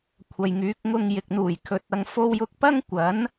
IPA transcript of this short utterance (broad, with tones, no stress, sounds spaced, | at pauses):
kʷʰ ɐ˨ j ŋ yː˨˥ k̚ ŋ ʊ˧ ŋ j ɪ˨ k̚ n̪ uː˨˩ j kʰ ɵ˨˥ t̚ ɐ˧ ŋ f o˥ w j ʊ˥ k̚ p ɐ˥ ŋ kʷ ɐ˨˥ n